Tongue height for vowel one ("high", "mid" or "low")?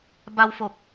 low